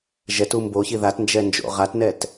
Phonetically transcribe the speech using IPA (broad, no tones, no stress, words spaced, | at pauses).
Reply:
ʒɛtum boçi ðatnd͡ʒɛ nd͡ʒo̰ʁatnɛt